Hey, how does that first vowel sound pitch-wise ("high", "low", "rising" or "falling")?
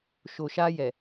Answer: low